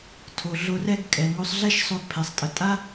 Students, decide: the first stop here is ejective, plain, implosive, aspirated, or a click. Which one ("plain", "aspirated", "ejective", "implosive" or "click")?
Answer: aspirated